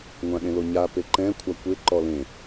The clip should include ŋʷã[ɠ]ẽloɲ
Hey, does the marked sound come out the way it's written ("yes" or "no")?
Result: yes